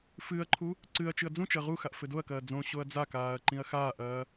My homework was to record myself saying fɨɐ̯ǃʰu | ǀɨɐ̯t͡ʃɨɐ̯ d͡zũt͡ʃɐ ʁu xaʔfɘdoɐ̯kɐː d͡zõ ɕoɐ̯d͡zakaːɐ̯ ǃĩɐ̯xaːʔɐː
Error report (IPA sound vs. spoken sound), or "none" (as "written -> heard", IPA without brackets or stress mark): none